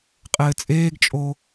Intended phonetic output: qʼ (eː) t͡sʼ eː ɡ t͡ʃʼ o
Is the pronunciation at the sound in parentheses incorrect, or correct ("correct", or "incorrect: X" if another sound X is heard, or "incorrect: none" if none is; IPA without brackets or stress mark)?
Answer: incorrect: ɘː